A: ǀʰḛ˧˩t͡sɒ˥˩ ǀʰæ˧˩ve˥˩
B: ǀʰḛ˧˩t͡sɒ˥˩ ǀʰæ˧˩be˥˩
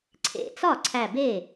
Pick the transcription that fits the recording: B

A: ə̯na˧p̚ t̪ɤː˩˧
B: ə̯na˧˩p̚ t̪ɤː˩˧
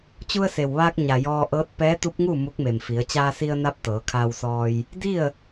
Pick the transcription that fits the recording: A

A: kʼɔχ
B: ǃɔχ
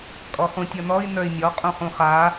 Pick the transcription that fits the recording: A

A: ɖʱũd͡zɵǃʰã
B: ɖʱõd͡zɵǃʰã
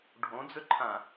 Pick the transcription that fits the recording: B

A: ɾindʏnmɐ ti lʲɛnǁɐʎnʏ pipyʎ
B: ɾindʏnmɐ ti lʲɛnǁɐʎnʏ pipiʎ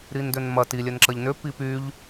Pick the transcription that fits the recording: A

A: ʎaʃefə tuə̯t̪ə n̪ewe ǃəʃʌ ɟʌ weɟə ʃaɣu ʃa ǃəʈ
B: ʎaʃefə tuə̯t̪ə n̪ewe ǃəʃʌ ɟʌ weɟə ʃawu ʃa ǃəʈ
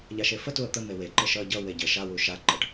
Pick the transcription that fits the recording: B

